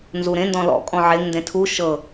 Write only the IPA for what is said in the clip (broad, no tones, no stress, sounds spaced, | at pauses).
n z u ɾ ẽ n d ɔ̃ l ɔ̰ kʼ ɔ̃ ʕ e ŋ n d ẽ tʰ u ʃ ɤ